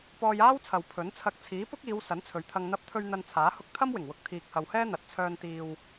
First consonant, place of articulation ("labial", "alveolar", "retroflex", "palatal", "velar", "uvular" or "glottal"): labial